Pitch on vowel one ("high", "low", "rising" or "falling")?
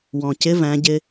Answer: low